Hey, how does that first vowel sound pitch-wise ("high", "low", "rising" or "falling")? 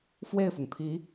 falling